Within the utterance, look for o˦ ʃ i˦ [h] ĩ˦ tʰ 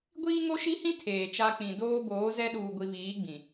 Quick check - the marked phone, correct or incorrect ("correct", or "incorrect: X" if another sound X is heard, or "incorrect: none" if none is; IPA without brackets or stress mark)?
correct